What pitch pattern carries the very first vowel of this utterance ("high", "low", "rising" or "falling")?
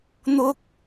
rising